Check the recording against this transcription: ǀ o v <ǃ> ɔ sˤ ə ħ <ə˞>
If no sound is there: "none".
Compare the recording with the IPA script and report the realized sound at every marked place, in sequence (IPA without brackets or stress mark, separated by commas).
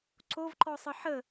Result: ǃ, ə